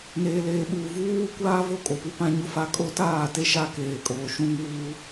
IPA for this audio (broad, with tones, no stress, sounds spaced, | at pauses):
n eː˨ l eː˨ ɓ uː˨ v uː˦ w u˦ kʷ aː˦ v o˦ kʼ o˨ p u˦ p ã˦ ɲ ʊ˦ f a˦ kʼ o˦ t aː˦˨ t e˦ ʃ a˦ k eː˨ kʼ oː˨ ʃ ũ˦ ŋ uː˦